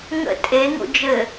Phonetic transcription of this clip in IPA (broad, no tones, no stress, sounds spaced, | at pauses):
ŋ ə̰ tʼ e ŋ ṵ d͡ʒ ɘ